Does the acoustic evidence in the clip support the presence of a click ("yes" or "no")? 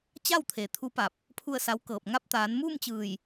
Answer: no